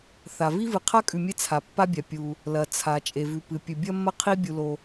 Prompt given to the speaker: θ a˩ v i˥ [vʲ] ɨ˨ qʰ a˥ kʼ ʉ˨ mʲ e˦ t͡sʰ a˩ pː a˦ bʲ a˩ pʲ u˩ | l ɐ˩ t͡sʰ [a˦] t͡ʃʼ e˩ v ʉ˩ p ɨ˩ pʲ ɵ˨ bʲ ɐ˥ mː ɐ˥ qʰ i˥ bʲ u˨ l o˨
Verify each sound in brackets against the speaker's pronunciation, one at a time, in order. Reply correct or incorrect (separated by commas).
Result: incorrect, incorrect